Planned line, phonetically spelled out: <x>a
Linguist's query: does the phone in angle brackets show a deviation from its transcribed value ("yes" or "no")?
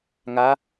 yes